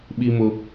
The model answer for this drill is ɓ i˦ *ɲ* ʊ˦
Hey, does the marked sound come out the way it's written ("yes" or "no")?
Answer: no